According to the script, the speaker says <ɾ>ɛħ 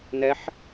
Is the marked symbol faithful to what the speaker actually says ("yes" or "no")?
no